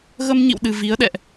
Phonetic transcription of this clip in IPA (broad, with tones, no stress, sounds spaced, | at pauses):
ɣ ə˧ m ɲ ḭ˧˨ w ɗ ɨ˨˩ v i˨˦ ə̯ ɗ ɛ̰˧˨ ʔ